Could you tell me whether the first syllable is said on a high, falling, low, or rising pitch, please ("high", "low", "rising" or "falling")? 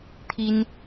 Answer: high